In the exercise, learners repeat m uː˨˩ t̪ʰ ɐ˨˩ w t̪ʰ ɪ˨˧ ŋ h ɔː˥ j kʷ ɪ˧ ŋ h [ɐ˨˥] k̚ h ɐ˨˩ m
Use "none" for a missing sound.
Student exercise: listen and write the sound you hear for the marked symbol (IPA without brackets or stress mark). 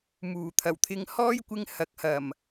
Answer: ɐ˨˥